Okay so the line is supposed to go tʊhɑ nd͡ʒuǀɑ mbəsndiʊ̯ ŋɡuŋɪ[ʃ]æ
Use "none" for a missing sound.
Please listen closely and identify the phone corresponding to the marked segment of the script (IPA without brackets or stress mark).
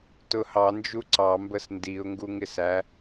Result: s